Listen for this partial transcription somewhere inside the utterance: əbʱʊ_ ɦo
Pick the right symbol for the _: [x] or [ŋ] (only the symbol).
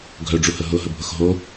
x